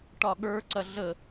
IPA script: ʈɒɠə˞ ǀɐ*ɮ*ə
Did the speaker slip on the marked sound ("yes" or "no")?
no